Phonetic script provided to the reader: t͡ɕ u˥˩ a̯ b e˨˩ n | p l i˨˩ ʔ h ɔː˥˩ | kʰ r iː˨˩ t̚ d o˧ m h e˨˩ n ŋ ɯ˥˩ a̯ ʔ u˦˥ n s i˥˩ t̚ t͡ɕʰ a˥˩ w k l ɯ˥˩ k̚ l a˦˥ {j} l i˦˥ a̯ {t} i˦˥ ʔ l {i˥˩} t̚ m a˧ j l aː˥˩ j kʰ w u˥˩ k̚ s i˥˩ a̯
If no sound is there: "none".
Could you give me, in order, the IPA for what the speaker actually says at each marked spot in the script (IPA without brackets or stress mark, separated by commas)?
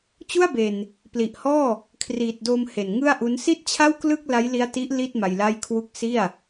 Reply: j, t, i˥˩